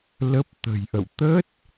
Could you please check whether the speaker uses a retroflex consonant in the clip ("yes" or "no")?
no